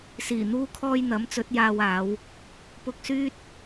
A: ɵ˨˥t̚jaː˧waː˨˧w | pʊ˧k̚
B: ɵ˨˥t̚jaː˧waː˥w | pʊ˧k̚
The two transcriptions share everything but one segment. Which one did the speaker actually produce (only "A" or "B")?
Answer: A